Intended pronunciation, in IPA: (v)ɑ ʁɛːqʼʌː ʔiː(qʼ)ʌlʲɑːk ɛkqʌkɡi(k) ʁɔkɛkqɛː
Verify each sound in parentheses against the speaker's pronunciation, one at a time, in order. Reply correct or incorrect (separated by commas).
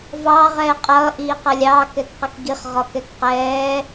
correct, incorrect, incorrect